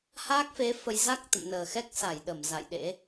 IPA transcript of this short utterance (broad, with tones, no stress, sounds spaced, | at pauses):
h aː˦˥ k̚ f e˨˦ f ə˧ j z a˦˥ k̚ t̪ ə̰˧˨ m n əː˨˩ x ɛ˦˥ k̚ s a˧˩ j ɗ ə˧˩ m z a̰˧˨ j ɗ ḛ˧˥